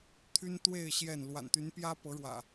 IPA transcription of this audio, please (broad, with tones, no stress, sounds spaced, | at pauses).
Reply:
t̪ʰ y˦ n t̪ w e˥˨ ɪ̯ ɕ j ɛ˥˨ n l w a̰˨˩ n t̪ y˨˦ n p j ä˦ p ɤ˨˦ ɻ w ä̰˨˩